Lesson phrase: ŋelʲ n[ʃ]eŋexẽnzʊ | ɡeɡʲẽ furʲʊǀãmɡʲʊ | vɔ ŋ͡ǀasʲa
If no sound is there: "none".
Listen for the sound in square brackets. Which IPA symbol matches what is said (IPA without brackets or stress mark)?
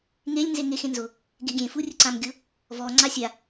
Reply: z